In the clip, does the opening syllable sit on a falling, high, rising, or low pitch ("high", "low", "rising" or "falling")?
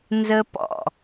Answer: high